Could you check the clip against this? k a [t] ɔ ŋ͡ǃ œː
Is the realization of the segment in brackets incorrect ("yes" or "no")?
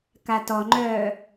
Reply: no